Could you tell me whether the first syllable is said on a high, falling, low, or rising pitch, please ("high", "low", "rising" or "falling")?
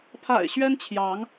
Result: low